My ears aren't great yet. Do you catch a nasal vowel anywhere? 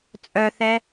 no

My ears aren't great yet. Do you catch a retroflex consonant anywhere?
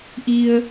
no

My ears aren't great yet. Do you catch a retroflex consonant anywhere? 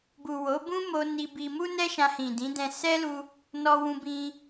no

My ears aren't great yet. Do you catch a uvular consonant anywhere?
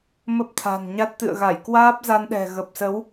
no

